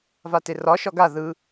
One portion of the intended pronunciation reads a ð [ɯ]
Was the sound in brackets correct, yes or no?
yes